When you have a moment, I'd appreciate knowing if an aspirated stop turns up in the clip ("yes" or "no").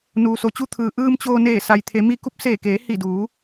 yes